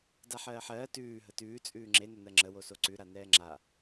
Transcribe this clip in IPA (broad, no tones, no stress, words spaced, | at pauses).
daħɜːħɜː tʉː ɦətʉː t͡sʼʉːŋ͡ǁe nənɜŋ͡ǁə wosoǀʉ ɾanɛːŋ͡ǁa